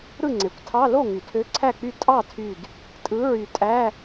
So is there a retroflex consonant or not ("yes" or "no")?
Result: no